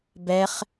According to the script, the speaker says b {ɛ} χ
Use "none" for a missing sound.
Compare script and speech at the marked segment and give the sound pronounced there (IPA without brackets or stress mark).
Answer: ɛ